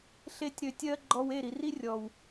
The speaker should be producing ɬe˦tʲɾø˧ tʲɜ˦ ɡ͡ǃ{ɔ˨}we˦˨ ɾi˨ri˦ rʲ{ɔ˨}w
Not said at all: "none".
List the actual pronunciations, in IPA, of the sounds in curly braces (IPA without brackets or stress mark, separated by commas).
ɔ˧, ɔ˨